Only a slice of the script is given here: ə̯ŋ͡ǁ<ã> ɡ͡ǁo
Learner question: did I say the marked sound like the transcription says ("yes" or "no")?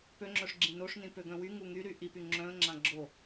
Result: yes